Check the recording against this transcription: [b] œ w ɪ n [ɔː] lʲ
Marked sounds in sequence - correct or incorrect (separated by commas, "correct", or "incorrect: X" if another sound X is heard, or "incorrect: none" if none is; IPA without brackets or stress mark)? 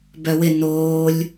correct, incorrect: oː